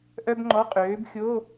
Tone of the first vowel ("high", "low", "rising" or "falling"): high